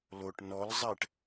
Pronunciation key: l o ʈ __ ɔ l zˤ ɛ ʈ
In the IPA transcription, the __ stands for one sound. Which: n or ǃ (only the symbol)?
n